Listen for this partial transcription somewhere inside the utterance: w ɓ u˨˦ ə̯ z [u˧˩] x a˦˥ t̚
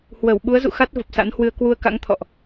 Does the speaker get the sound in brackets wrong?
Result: yes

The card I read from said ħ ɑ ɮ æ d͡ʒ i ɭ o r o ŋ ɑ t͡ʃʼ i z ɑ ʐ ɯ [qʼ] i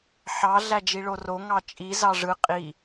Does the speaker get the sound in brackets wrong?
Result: no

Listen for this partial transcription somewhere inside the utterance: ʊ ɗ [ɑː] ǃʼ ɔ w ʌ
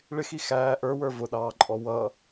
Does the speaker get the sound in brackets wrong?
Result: no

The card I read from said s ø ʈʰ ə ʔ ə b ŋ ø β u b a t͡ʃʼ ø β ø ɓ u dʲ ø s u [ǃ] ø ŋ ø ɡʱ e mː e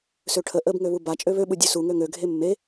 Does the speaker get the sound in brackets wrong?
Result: yes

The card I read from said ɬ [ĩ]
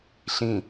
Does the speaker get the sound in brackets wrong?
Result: no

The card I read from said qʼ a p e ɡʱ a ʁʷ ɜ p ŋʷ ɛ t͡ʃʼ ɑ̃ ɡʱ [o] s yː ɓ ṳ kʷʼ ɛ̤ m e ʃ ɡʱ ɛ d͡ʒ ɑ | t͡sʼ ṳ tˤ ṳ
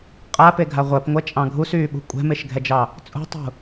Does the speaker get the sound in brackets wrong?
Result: yes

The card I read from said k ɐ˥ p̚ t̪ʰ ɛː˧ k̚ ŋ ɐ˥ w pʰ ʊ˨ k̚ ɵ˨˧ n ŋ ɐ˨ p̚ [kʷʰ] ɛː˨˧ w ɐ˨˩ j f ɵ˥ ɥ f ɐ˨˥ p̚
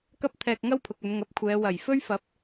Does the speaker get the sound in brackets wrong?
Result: no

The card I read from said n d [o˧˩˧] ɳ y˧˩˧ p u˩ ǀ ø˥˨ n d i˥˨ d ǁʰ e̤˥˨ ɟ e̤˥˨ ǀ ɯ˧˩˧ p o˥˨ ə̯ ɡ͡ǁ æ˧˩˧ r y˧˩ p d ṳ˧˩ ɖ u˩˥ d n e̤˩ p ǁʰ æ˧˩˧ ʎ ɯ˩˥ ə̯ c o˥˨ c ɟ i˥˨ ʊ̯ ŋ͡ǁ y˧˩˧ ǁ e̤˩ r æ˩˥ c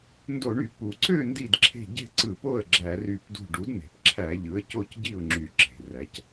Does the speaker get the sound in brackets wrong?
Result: no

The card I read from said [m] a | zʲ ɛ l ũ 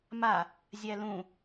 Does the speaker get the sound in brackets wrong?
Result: no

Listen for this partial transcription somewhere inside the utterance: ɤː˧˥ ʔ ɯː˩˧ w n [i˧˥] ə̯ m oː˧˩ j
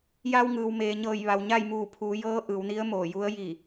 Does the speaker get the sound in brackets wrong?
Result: no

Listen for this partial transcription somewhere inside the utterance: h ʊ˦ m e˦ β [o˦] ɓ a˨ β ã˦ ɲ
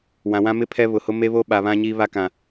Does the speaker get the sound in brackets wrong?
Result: no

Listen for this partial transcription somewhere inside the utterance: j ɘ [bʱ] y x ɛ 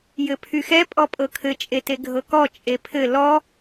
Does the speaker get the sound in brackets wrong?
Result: yes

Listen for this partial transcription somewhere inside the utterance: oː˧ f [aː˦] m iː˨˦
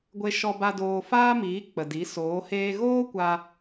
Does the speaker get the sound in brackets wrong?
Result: no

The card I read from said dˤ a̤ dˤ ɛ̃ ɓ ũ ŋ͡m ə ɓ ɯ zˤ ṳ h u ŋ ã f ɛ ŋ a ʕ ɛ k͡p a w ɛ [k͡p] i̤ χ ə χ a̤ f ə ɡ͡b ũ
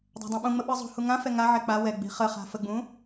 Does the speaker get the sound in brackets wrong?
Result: yes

